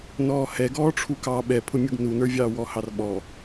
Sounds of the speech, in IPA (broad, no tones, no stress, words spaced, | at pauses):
nɔːhɛ ɡɔːʈ͡ʂʰukɑ ɓɛpʰʊmʲuɡ nunə˞vʲɑː wɔhɑrɓɔ